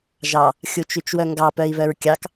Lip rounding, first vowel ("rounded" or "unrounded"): unrounded